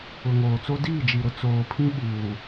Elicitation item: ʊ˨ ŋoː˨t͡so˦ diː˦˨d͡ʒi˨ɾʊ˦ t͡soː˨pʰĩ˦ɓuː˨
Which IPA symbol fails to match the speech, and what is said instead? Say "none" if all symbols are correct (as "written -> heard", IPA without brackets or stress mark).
none